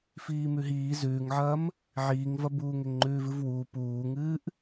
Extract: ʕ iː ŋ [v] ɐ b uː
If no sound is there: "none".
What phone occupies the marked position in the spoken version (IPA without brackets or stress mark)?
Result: v